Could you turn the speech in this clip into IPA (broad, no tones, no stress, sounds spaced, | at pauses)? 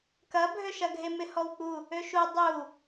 k ɐ bʱ ø ʃ ɐ ɡʱ e m ɪ h ɔ w k͡p u | ø ʃ u dˤ u